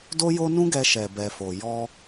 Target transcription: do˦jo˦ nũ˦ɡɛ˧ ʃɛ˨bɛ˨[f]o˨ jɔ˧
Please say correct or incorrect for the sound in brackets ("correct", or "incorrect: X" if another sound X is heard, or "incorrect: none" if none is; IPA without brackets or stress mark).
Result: correct